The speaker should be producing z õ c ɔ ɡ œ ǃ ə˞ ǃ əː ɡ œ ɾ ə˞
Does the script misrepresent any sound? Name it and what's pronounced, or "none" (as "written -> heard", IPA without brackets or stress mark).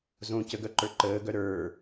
ɔ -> ə